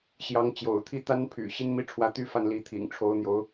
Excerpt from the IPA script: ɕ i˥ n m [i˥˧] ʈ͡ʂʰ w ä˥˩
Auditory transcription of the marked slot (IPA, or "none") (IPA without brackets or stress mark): i˥